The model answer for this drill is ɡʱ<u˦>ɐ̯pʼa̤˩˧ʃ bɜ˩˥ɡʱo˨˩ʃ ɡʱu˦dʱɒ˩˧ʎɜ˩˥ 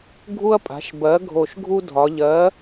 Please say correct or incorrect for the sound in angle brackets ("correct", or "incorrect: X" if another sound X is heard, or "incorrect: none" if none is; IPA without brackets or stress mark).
correct